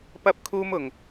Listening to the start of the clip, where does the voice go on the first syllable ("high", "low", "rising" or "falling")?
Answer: high